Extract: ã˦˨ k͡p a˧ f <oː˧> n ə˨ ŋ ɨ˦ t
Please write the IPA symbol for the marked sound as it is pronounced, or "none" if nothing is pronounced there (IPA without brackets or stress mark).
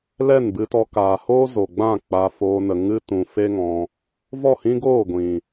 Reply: oː˧